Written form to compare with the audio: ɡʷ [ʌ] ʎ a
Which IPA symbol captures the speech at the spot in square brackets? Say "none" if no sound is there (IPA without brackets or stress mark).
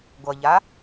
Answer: ʌ